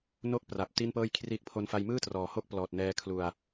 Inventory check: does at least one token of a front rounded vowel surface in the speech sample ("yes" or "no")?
no